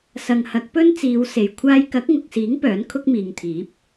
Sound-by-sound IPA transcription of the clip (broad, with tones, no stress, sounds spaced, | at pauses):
s ɐ˨ ŋ h ɐ˨˥ k̚ p ɵ˥ n t͡s iː˨˧ w s e˨ j kʷʰ aː˧ j k ɐ˨˥ k̚ ŋ ʊ˨ k̚ s iː˨˥ ŋ p œː˨˥ n kʰ ʊ˥ k̚ m iː˨ ŋ t̪ʰ iː˨˥ p̚